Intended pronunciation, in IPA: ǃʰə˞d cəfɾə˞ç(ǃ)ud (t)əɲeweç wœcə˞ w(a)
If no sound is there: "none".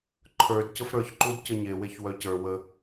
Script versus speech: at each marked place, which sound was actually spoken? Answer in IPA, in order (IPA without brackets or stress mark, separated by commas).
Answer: ǃ, c, ə